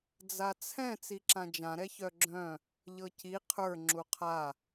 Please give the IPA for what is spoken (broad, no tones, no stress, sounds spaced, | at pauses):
d͡z a t͡sʰ ɛ̃ t͡s i ǁ ã d͡ʒ ã ɾ ɛ ç œ ɡ͡ǁ œ̃ | ʎ ɤ c i qʰ ə˞ ŋ͡ǁ u qʰ a